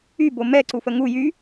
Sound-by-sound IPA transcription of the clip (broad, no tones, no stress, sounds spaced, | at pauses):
y b o m ɛ ǀ u f ə ŋ u j y